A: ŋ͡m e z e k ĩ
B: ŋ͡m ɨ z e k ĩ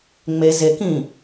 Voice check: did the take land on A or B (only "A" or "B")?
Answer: A